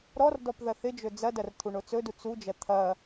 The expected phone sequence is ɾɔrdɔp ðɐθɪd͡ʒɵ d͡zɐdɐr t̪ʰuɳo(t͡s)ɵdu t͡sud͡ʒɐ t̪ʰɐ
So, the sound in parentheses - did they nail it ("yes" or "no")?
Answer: yes